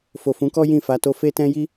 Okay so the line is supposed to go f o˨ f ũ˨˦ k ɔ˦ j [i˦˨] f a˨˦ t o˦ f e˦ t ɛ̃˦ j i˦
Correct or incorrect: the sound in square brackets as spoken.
incorrect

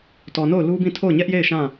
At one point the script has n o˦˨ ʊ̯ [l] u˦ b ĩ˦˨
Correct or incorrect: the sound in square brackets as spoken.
correct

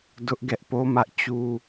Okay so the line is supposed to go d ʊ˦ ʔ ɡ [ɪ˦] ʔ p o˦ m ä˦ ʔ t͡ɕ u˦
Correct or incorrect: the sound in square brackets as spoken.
incorrect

